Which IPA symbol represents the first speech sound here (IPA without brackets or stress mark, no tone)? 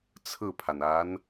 t͡sʰ